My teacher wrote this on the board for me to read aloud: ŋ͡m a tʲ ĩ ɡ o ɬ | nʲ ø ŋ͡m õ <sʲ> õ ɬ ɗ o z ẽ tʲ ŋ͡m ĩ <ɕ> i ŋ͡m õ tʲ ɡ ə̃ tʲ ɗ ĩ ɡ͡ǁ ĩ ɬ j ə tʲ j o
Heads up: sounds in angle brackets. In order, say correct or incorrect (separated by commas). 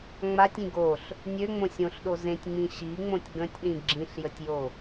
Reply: correct, correct